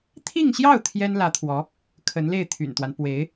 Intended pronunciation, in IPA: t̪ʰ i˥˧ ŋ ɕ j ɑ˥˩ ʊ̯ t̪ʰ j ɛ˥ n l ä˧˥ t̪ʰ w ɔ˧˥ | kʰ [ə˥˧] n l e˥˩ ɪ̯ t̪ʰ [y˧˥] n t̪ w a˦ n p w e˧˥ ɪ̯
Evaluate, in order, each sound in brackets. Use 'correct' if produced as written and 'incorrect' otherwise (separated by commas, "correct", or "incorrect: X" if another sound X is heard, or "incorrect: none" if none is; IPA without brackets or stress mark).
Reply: incorrect: ə˧˥, incorrect: y̰˨˩